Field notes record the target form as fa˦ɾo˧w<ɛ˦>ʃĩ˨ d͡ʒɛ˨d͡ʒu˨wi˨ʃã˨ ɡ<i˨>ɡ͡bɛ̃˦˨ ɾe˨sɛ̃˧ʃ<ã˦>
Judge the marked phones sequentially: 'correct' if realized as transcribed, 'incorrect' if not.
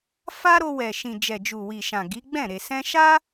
incorrect: ɛ˨, incorrect: i˨˦, incorrect: a˦

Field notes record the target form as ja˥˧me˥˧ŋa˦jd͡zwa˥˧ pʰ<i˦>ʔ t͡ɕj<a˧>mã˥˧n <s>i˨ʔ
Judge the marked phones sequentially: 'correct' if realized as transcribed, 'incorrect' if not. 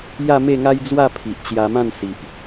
incorrect: i˨, correct, correct

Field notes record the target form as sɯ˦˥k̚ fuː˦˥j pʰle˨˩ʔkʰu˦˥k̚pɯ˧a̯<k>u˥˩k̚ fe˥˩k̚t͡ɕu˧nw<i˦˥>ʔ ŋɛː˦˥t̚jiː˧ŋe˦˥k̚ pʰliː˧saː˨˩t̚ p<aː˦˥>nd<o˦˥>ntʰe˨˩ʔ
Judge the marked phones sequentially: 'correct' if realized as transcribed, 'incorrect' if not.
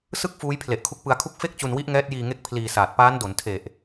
incorrect: kʰ, correct, correct, incorrect: o˩˦

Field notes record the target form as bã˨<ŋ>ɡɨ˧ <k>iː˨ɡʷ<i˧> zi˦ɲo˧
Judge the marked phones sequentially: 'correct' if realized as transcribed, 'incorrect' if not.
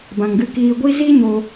correct, correct, correct

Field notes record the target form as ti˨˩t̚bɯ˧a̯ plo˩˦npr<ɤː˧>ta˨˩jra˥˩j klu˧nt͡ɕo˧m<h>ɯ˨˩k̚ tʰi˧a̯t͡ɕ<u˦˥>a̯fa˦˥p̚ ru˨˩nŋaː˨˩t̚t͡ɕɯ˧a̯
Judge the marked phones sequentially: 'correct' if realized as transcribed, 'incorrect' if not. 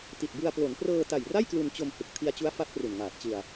correct, correct, correct

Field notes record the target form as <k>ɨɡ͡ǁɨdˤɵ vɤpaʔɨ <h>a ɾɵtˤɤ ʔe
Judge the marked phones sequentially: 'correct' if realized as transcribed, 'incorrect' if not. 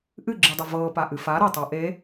incorrect: ʔ, incorrect: f

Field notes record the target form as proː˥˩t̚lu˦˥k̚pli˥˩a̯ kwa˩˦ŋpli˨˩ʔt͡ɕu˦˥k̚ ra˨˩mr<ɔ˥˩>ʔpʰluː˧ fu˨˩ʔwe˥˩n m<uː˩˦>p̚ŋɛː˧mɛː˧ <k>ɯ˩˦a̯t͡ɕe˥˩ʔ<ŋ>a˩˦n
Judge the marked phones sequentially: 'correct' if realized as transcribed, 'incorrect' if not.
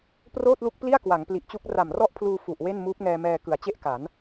correct, incorrect: uː˦˥, correct, incorrect: k

